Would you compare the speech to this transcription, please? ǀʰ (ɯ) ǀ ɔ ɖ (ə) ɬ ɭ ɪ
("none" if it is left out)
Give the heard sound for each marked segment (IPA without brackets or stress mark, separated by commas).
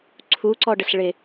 u, ə